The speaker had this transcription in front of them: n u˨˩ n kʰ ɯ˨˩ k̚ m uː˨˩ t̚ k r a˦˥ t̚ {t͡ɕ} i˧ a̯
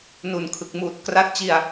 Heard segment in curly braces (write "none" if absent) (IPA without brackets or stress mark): t͡ɕ